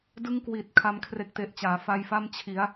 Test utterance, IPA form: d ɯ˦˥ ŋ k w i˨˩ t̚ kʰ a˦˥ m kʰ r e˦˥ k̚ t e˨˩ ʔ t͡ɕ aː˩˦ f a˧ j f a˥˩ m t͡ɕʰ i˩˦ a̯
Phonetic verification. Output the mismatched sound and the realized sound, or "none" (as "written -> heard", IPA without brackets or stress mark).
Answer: none